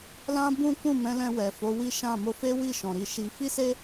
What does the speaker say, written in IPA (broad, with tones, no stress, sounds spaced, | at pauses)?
l ã˦ b ũ˦ k ũ˦˨ m ɛ̃˨˦ l ɛ̃˧ w ɛ˨ f o˨˦ w i˦ ʃ ã˦˨ m o˧ f e˦ w i˦˨ ʃ ɔ̃˨ ɾ i˧ ʃ i˧ f i˦ s e˦